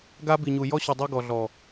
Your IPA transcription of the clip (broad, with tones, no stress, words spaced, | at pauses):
ɡa˦ bi˨ɲu˨ jɔ˦ɕu˨ dˤe˦ ɡɔ˨ɮɔ˨